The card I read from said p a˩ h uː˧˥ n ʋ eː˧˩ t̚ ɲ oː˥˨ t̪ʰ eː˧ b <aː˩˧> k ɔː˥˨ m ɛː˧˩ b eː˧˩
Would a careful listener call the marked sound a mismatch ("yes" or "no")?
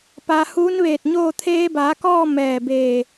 no